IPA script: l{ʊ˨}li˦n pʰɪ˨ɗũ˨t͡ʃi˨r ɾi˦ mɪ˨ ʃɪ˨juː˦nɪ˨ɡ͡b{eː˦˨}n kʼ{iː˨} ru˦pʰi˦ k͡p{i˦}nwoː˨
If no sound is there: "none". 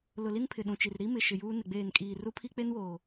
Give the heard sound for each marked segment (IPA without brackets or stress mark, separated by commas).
ʊ˨, eː˦˨, iː˨, e˦